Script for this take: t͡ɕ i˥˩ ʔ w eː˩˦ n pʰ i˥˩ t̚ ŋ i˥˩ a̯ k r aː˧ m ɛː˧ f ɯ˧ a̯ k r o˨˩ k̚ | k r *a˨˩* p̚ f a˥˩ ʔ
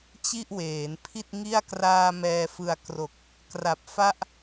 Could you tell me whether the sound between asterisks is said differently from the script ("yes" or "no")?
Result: no